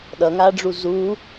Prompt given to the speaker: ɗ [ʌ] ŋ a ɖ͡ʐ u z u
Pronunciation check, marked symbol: correct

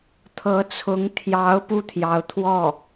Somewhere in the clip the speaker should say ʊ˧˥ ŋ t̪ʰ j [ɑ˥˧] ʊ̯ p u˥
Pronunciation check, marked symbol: incorrect: ɑ˧˥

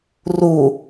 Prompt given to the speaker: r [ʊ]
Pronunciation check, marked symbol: incorrect: u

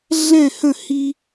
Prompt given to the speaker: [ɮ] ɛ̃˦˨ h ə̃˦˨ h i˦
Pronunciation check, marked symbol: correct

